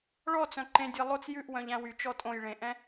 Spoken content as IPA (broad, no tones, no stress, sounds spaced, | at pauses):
ɭ ɔ t͡s œ̃ ǃ ẽ dʲ ɛ lˠ o t͡s j ʉ ʔ w œ̃ ʎ æ̃ w y t͡ʃ ɔ tʼ õ j ɭ ẽ ʔ ɛ̃